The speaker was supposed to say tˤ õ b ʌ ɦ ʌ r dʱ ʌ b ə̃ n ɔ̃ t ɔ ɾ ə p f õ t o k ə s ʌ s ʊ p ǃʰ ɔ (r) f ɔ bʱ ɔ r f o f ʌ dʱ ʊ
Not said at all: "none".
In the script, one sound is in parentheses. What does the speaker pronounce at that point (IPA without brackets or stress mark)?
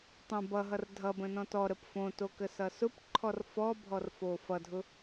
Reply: r